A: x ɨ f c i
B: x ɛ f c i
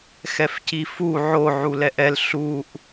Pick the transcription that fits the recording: B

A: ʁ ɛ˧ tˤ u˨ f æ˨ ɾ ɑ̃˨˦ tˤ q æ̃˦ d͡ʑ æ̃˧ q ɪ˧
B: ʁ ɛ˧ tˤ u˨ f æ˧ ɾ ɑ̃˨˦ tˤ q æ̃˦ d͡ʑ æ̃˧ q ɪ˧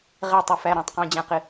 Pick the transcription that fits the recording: B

